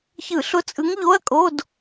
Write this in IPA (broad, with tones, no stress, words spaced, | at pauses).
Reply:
çɯ˧˩˧ɬʊ˧˥˧t͡sʼɯ˧˥ŋ ʎo˧˥˧ɐ̯kʼo˧˥˧d